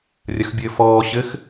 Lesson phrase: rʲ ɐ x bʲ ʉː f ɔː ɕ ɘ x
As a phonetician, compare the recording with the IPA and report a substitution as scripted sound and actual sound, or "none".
ʉː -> ɘː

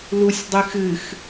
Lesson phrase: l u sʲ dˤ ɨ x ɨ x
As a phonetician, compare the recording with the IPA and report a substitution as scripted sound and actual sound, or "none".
none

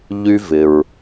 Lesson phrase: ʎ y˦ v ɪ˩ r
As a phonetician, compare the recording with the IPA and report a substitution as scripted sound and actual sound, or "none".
r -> ɹ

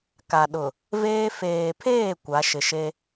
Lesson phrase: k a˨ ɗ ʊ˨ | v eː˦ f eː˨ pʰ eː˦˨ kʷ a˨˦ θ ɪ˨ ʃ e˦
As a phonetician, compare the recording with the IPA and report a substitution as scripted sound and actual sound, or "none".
θ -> ʃ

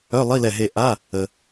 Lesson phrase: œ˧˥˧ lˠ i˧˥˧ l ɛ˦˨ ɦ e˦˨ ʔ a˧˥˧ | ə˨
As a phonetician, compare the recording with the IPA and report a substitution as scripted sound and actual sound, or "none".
none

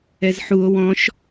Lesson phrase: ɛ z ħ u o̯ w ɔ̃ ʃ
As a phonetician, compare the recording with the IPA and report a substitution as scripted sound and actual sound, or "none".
none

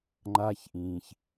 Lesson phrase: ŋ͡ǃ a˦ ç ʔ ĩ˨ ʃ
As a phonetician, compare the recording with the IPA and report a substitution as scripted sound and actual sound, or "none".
ʃ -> ç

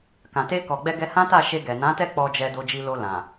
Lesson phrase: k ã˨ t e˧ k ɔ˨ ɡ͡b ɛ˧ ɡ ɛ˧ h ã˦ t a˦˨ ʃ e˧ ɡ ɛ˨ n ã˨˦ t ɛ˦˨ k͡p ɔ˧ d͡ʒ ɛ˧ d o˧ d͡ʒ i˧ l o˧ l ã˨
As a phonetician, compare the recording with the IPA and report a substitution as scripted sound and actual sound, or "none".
none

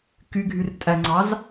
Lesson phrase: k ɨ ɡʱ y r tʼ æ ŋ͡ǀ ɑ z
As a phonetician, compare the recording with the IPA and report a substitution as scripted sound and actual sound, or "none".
ɨ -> y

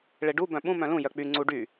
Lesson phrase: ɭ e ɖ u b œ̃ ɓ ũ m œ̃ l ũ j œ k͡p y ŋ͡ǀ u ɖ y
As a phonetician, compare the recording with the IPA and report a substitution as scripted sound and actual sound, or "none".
none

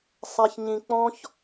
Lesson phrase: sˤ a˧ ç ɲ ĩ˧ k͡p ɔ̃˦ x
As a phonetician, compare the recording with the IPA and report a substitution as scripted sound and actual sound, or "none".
x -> ç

